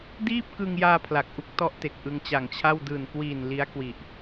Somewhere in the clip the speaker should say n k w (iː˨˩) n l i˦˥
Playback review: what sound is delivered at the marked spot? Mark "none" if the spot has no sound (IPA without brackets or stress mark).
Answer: iː˨˩